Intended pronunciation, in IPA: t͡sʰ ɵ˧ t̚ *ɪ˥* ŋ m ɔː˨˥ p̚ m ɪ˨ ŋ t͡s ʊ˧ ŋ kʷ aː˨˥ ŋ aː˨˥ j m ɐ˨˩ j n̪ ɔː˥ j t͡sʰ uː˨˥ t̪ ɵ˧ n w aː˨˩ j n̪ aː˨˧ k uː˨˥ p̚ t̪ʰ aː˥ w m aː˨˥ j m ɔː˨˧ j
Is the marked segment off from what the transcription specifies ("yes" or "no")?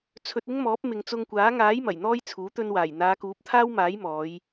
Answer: no